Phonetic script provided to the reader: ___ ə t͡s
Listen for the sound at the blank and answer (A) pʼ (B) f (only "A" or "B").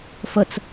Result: B